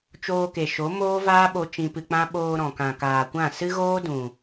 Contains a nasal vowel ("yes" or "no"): yes